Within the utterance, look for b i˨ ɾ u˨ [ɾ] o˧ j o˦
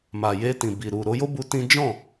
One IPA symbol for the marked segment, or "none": ɾ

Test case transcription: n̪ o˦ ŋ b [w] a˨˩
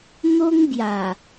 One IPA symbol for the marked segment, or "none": j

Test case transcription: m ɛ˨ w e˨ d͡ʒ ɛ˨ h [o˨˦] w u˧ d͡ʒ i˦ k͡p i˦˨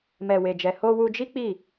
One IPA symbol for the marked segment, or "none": o˧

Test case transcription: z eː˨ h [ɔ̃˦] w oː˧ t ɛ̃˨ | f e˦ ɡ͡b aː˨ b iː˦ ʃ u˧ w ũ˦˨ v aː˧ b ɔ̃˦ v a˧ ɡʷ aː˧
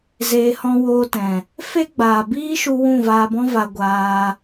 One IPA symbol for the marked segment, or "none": ɔ̃˧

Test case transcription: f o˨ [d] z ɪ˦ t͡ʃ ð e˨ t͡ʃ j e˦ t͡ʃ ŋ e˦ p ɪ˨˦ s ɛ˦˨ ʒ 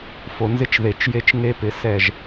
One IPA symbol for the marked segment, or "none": n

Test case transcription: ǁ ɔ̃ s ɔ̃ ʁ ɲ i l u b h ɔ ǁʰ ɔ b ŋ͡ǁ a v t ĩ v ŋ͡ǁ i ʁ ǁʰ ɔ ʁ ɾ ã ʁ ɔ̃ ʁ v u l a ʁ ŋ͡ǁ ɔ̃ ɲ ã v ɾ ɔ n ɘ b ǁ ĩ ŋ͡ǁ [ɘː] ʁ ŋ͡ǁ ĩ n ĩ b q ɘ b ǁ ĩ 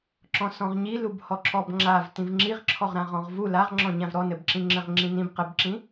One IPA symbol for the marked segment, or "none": ɘ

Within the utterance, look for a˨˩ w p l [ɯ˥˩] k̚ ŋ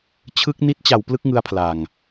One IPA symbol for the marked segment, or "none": ɯ˦˥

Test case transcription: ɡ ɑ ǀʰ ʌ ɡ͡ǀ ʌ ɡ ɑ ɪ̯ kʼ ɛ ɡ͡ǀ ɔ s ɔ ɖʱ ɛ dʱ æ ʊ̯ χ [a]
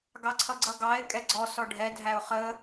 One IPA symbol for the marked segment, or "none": ə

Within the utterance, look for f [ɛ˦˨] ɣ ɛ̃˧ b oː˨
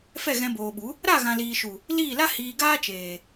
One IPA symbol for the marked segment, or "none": ɛ˦˨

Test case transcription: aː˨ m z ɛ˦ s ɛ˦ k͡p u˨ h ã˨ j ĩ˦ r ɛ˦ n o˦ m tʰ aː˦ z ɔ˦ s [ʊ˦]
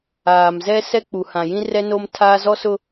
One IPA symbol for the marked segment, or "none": ʊ˦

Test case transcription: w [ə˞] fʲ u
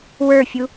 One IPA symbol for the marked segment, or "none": ə˞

